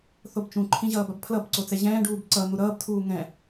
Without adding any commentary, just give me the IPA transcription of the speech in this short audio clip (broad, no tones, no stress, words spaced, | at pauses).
θobt͡ʃũǃʰĩ ʑʌːbabpʰlʌbǀo t͡sɛʑɛ̃ːɖuːb ǀʌ n̪uɾʌːbtʰuː ŋɛ̃